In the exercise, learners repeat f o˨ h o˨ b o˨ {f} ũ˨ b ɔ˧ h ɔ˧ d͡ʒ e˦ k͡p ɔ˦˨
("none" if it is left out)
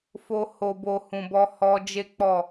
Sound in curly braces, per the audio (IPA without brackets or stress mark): h